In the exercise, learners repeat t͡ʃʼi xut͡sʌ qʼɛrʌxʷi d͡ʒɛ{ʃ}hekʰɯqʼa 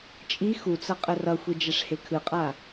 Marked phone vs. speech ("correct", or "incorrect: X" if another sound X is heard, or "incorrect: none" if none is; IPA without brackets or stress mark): incorrect: ʂ